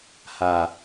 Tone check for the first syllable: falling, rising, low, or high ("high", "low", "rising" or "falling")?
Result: low